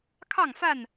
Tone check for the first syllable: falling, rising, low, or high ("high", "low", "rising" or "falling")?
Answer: falling